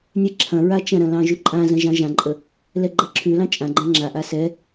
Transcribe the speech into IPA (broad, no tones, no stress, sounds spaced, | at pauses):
nʲ ɛ ǁʰ ɐ̃ ɹ a t͡ʃ ɐ̃ ɾ ɐ̃ l ɑ̃ ʒ ʉ ǃʼ ã z ɐ̃ ʒ ɑ̃ ʒ ã ǃʼ ə | l ɛ ɡ͡ǃ ɐ ǁʰ ʉ l ɑ̃ t͡ʃʼ ã ɡ͡ǃ ɛ̃ ŋ͡ǁ a ʔ a s ɛ